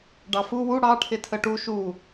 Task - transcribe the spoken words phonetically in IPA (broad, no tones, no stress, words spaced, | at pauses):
ɖɑfu wu ɽɑ ʈʰɪtʰəʈu ʃu